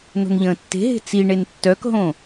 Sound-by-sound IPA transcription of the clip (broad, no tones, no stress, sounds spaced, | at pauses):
n o̤ n ʎ ə̃ː tː e̤ ɦ e̤ t͡s i ɳ e n tː œ k ɦ õ